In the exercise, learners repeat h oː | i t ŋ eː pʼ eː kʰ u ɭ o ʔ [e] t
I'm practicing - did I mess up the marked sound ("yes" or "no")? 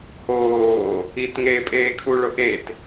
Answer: no